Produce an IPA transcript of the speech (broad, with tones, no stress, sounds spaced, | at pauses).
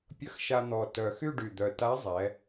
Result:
pʲ ə˧˥ x ʃ a˧ n̪ ɔ˨˩ t œ˨˩ x y˥˧ ɖ y˨˩ d̪ œ˨˩ t a˧˥ zˤ ɛ˩˧